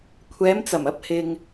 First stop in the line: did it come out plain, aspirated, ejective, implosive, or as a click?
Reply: aspirated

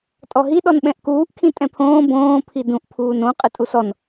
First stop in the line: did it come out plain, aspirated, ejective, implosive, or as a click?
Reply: ejective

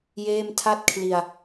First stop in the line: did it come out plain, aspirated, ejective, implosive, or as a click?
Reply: aspirated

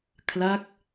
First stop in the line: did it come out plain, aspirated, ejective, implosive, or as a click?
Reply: aspirated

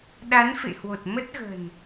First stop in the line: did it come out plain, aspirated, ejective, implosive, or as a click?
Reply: implosive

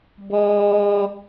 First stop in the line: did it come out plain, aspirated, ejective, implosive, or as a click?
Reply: plain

